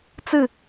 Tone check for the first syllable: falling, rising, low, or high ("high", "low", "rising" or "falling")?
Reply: falling